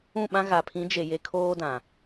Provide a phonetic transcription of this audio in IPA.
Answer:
ũ˦˨ɓã˦ ɣa˨pʰĩ˨˦d͡ʒe˨ je˨ kʰoː˦dã˨

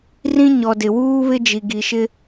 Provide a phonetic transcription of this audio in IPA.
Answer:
rĩ˦ɲɔ˨dɪ˨ wuː˦βɪ˦ d͡ʒi˨ɡi˨ʃɪ˦

